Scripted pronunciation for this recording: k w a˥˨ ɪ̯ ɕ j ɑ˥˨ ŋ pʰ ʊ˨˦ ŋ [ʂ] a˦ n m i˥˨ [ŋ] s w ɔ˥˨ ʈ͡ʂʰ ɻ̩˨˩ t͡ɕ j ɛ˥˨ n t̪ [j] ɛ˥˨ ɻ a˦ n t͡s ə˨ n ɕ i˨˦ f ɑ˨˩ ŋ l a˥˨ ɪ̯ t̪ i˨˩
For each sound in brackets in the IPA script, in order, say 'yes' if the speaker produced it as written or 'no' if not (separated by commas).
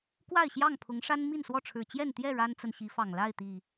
yes, no, yes